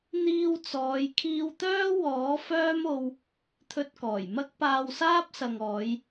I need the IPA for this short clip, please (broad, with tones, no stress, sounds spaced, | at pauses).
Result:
n̪ iː˧ w t͡s ɔː˨˧ j kʰ iː˧ w t̪ œː˥ w ɔː˨˥ f œː˥ m o˧ w | t̪ʰ ɵ˧ t̚ k ɔː˨˩ j m ɐ˥ k̚ p aː˧ w s aː˥ p̚ s ɐ˨ ŋ ɔː˨˧ j